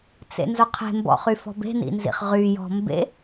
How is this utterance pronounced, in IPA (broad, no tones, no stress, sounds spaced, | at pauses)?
t͡s ḛ n z ʊ qʰ e̤ m b ɔ̰ χ y f ɔ̤ b e̤ n ḭ n z ḭ χ ʁ y j ɔ̤ m b ḛ